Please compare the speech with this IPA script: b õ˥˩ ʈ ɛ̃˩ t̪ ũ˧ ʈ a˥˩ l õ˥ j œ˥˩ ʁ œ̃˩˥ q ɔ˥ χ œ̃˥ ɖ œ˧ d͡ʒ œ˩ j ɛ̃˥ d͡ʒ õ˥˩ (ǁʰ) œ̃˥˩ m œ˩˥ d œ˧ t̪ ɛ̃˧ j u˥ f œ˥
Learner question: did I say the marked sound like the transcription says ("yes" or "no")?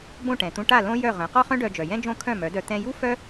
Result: no